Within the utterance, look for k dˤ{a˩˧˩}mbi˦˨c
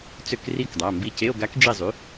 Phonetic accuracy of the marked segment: correct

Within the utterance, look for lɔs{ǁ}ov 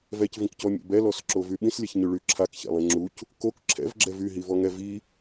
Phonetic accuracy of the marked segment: correct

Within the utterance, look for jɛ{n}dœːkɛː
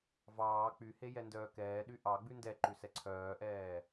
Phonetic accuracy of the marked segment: correct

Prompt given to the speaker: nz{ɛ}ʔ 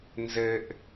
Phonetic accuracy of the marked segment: incorrect: ɘ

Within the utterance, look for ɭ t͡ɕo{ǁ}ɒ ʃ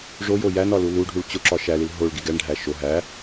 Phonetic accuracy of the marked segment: correct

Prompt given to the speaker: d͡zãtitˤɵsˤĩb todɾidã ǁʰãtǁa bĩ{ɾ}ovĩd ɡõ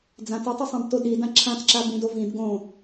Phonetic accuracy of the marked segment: incorrect: d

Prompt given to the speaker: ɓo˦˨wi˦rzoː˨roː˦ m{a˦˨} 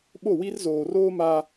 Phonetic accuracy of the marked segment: incorrect: a˦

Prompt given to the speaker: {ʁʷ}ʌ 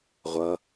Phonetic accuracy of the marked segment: correct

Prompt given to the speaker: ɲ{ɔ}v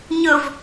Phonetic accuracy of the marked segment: incorrect: ʊ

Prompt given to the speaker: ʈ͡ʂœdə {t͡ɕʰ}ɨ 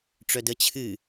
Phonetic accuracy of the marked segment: correct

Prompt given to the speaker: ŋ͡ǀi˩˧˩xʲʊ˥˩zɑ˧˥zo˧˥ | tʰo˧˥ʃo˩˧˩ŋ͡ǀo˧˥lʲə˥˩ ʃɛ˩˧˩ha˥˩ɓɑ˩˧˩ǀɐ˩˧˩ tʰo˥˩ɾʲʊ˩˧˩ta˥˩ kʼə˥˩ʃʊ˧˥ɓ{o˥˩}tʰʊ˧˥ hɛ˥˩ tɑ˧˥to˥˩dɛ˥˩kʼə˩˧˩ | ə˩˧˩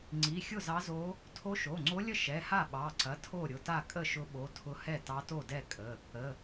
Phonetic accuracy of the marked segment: incorrect: o˩˧˩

